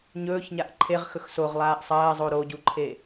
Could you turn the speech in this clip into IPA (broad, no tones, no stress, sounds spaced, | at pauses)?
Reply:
ɲ ɵː ç ɲ a ʔ ǃʰ e ʁ x ɵ x s o ʁ lˠ aː ʔ sˤ ɐː zˤ o ɾ o ɟ u ǃʰ e